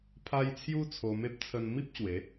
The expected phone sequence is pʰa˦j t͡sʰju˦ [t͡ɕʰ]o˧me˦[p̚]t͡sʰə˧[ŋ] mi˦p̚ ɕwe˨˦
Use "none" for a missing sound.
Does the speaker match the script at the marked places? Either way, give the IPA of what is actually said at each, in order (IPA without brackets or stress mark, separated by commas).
t͡sʰ, p̚, n